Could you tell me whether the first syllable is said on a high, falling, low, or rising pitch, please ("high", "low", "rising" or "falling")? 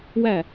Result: falling